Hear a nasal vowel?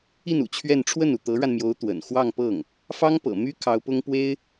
no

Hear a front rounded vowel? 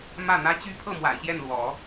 yes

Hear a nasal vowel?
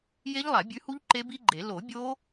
no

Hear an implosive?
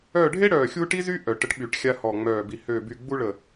yes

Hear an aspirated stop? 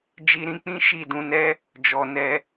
no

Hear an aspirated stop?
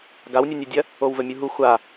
no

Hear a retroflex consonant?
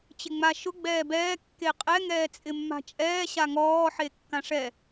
yes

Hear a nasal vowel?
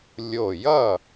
no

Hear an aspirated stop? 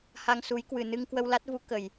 no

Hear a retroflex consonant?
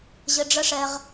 yes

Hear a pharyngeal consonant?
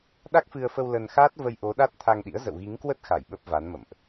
no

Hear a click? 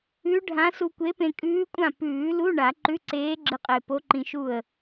yes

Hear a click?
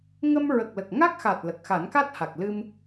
no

